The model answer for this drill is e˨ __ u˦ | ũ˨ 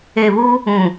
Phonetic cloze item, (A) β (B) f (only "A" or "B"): A